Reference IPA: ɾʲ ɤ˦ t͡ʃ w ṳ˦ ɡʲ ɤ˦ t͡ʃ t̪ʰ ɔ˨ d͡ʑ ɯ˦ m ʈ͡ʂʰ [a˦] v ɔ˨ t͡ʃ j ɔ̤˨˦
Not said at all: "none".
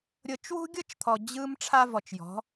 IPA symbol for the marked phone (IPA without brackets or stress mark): a˦